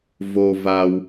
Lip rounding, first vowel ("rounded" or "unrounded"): rounded